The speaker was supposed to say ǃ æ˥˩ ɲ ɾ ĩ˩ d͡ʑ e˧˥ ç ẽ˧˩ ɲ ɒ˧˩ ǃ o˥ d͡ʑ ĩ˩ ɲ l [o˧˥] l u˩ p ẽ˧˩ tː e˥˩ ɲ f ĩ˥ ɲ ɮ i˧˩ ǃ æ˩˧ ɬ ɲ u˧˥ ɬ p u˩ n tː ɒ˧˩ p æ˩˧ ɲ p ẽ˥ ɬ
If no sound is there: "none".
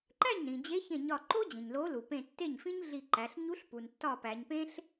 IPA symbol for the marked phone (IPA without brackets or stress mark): o˧˥